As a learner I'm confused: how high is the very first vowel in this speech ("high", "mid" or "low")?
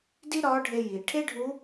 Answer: high